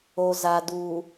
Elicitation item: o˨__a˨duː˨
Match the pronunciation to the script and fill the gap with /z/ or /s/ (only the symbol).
z